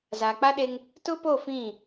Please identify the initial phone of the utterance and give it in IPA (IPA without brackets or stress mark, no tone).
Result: z